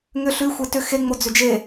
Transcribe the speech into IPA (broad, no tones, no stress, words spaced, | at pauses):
ŋʏ ɬʉ xʷetʏ xe ŋ͡mod͡zʏd͡ʒe